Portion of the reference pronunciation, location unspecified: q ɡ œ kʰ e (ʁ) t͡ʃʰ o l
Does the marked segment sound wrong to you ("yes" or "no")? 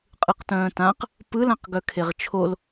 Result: no